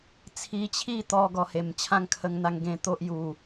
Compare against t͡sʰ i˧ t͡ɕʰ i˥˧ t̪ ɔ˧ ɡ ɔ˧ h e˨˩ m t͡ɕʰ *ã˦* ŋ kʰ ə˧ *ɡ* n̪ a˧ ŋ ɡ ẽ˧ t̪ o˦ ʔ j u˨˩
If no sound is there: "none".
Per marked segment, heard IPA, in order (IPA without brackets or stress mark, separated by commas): ã˦, ŋ